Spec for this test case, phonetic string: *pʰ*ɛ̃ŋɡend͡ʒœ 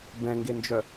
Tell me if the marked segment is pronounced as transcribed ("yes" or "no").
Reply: no